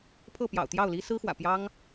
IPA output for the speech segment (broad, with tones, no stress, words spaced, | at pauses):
pʰɤ˥˩ pjɑ̰˨˩ʊ̯t̪jɑ˥˩ʊ̯li˥ sɹ̩˥xwä̰˨˩pjɑ˥ŋ